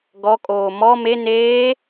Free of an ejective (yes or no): no